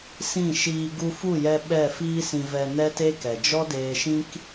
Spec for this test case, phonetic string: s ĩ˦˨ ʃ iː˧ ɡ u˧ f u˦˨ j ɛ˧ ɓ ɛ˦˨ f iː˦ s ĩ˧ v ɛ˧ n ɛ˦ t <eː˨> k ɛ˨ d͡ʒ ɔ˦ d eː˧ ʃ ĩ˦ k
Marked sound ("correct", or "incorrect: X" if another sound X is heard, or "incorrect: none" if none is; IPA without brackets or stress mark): incorrect: eː˦